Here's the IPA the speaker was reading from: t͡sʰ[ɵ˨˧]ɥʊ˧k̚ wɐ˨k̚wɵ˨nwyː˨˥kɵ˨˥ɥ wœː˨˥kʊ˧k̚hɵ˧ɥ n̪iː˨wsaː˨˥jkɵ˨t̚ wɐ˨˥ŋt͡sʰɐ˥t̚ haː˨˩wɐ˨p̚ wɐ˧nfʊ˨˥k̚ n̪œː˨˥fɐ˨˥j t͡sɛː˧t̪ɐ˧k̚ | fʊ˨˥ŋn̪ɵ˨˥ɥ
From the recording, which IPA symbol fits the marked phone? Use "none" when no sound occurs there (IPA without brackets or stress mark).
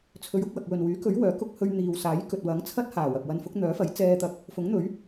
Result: ɵ˨˧